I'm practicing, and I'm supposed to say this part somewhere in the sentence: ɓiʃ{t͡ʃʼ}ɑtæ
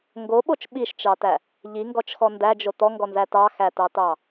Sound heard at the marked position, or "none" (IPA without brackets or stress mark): t͡ʃ